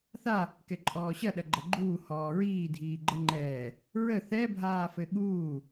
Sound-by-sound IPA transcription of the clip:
θa | kɛǃʼɔːɕɐ ɗɐɡ͡ǃɐɡ͡ǃuː hɔːɹiː dʱiːɡ͡ǃəŋ͡ǃɛː | ɹə θɛbʱaːfɘ ɠuː

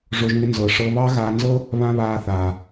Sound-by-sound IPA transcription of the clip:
ʐo˧ʒŋɪ˧nzɤ˨ʂɤ˧ βɑ˦ɣaː˧nzɤ˦ | βã˦βaː˧θaː˨

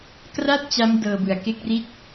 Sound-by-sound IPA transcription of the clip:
kra˥˩t̚t͡ɕa˦˥m dɤː˧bɯ˨˩a̯ ke˥˩k̚ri˥˩t̚

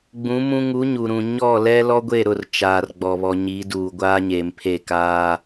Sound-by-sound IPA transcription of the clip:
ɡ͡bũ˨˦mũ˦ ŋu˨˦ɲu˨ɾũ˨ ɲɔ˦˨lɛ˦ lɔ˦ɡʷe˦˨ɾʊ˦˨r t͡ʃaː˨rɡ͡bɔ˨ βɔ˨ɲiː˨˦ duː˨ ɡʷaː˦ɲeː˨mpʰe˦˨kaː˦

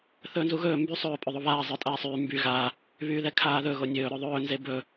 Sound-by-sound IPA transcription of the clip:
θɵːnzuɣɵː mby sˤɵː pʼɵðˤoβaː zˤə˞tʼaːsˤyː mby ɣa | βyːðɛkʰaːðɵ ɣonʲɵː ɾɵðˤɵː nzebɵ

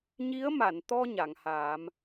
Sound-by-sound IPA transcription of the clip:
ɲi˧˥ə̯ma˨˩˨nt̪ɔ˧ ɲa˨˩˨ŋhaː˨˩˦m

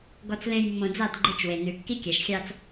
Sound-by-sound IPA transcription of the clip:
ɡɔ˨t͡slẽ˨j mːõ˨d͡zɑ˦˨d ɡ͡ǃe˦t͡ʃwe˨ nʉ˨ kːi˦kʲæ˨ʃxʲɑ˦t͡s

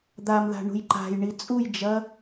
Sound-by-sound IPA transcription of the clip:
d̪amða̤ ɳṳjǃa̤jɳi t͡sʼujd͡ʒɐ

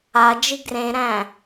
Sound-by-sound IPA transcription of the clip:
ad͡ʒi ɡrẽɾæ̃

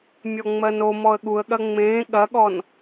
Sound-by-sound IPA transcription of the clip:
mʲɔŋ͡mɜnomɔə̯ ɠuə̯ɠɐ ŋ͡mẽː ɠɐɠɔn

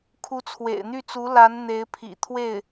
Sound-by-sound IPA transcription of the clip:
kʰu˧˥t͡sʰwḛ˨˩ɪ̯n̪y˥˩t͡su˧˥ la˧˥n n̪e˧˥ɪ̯pʰḭ˨˩ t̪ʰwe˥˩ɪ̯

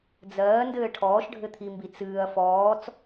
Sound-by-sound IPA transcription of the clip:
d͡zɜːndɘː ʈʰɔːʃɖʱɘt̪ʰimbi t͡sɨːɐ̯ fɔːt͡s

